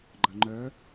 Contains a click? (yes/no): yes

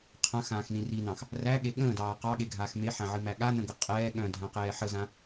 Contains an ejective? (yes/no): yes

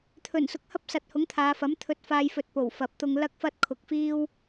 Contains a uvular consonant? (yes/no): no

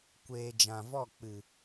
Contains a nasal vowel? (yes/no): yes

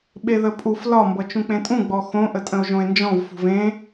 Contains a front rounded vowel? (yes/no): no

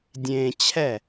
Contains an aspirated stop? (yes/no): yes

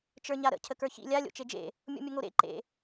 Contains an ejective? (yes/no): no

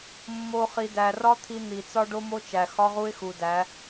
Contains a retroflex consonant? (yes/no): yes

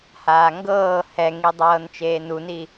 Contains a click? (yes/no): no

